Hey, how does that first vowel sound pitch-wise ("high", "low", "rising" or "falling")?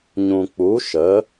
low